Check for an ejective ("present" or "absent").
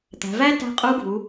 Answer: present